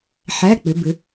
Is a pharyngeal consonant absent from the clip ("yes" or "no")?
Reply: no